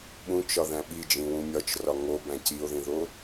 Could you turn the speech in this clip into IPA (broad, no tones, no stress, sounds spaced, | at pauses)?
ɓ ũ t͡ʃ ɒ ð æ̃ ɓ i d͡ʒ ĩ w ũ mʲ ɒ t͡ʃ r ɒ ŋ o b æ̃ c i o̯ ð ĩ ð o